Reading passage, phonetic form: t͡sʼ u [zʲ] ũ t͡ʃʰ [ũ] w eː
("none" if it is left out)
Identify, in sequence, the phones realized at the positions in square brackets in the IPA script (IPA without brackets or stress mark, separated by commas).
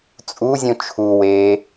zʲ, u